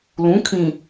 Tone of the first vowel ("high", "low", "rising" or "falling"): rising